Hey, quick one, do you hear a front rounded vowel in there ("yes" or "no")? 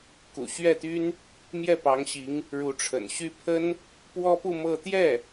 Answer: yes